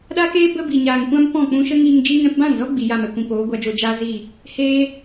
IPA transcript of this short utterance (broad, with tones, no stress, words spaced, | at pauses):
ɗaː˦keː˦ bə˦bi˨ɲaː˨ŋkʷã˦m pɔ̃˦˨k͡pũ˧ʃə˦ŋiː˧ŋ d͡ʒi˧ŋɛ̃˧pbã˦˨ŋzɔ˦ ɡ͡bi˨ja˦˨mɛ˨kʷĩ˨ poː˨˦ɡʷa˧d͡ʒoː˧ d͡ʒaː˦zi˦˨ | heː˦